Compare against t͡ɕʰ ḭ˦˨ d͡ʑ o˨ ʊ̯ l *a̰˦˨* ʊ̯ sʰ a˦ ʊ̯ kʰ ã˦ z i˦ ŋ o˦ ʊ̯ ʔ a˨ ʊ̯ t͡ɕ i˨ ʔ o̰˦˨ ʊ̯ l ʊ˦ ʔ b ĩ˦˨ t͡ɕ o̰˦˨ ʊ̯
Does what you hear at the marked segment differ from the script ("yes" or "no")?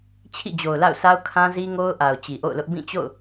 no